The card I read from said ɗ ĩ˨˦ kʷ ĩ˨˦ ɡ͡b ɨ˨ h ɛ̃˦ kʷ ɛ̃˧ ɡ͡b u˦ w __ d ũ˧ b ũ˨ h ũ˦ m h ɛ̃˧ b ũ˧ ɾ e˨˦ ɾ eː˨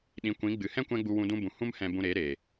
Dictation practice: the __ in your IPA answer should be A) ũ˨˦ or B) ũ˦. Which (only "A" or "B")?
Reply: B